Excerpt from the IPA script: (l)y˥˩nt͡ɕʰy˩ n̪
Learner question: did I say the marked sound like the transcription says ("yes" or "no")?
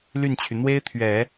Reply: yes